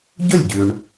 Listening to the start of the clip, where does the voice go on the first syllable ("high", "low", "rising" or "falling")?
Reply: falling